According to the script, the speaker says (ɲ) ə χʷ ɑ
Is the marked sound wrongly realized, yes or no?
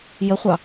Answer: yes